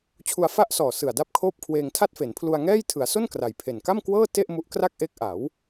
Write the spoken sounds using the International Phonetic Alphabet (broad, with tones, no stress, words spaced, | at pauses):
t͡ɕʰu˧a̯fa˥˩ʔsɔː˨˩sɯ˨˩a̯ da˥˩p̚kʰoː˥˩p̚kʰweː˧ŋ tʰa˥˩t̚fe˩˦npʰlu˧a̯ŋɛː˥˩j tʰɯ˩˦a̯so˥˩n kra˨˩jpʰe˨˩n ka˥˩mkwɤː˥˩te˥˩ʔ mu˦˥ʔ kra˥˩k̚ʔeː˦˥k̚ʔa˩˦w